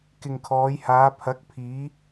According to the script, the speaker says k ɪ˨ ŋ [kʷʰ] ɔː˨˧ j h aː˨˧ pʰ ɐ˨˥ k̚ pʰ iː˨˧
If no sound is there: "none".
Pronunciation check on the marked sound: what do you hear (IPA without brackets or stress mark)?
kʰ